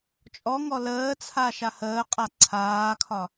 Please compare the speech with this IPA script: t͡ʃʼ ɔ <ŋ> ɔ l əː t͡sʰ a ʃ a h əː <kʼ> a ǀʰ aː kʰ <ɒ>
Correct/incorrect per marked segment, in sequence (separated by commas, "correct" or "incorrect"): correct, incorrect, correct